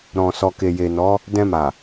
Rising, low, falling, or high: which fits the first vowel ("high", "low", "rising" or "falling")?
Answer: low